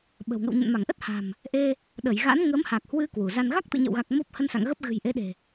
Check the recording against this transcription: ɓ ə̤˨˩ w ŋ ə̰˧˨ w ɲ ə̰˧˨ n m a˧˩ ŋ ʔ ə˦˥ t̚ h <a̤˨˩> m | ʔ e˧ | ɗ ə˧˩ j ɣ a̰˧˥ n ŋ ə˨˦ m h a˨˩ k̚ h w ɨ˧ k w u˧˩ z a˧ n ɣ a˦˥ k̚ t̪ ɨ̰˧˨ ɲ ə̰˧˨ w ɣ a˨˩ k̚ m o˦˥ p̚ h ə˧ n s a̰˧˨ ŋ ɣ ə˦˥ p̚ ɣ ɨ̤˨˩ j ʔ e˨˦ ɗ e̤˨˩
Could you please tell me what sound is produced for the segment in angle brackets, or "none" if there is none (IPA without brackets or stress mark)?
a̤˨˩